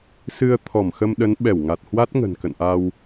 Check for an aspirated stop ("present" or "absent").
present